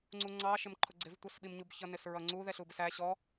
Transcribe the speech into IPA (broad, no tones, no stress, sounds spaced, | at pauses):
ŋ͡ǀ u ŋ͡ǀ ɑ ʃ ɪ m ǃʰ ʊ ɡ͡ǀ ɪ v tʷ ʌ s ɓ i m ɲ u b ç ʌ n ɪ s ɹ ʌ ŋ͡ǀ u ð ɛ ɬ u b ɪ s æ ɕ ɔ